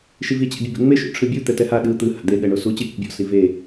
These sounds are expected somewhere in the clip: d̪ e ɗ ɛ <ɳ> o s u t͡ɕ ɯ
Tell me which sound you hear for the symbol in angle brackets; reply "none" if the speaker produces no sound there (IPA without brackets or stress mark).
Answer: ɳ